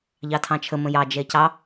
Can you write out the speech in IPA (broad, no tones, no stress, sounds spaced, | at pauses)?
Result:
ʎ ɑ tʰ ɑ̃ t͡ʃʰ ə m ə̃ j ɑ d͡ʒ ɛ c ɑ